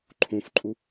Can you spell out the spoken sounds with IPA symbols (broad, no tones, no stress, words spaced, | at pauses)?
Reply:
ǃʰũfǃʼu